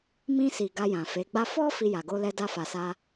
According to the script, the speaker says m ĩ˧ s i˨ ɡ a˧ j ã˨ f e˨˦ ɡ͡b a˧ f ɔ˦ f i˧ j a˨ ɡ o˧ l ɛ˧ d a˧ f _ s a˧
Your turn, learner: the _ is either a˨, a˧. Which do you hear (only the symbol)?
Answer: a˨